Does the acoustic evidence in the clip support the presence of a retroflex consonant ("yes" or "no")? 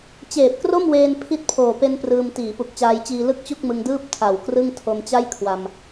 no